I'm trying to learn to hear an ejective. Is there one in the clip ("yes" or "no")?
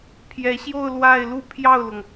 no